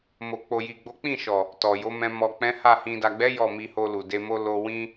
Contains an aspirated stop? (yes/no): no